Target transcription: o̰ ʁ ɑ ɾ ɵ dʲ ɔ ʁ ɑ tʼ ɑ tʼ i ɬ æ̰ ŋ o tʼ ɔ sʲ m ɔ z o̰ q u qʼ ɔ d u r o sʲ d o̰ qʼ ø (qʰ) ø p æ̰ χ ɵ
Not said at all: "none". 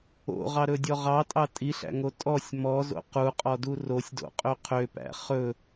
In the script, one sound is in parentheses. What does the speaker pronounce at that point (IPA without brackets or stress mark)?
qʰ